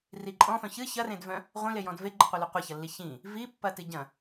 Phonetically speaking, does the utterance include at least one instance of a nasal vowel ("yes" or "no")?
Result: yes